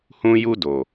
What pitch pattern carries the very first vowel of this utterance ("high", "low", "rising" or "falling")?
high